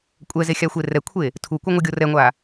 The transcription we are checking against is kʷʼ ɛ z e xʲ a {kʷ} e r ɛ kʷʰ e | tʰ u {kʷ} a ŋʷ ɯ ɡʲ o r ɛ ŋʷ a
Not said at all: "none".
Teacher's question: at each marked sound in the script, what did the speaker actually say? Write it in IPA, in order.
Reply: xʷ, kʷ

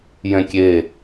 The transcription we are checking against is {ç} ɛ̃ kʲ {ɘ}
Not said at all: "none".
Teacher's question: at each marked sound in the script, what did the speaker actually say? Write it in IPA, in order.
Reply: j, e

